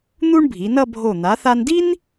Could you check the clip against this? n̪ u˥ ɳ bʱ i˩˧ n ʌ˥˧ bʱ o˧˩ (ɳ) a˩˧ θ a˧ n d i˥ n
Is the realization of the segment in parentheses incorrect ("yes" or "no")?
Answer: yes